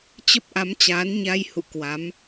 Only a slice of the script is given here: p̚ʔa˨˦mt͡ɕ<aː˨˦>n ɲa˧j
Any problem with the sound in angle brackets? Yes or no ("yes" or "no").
no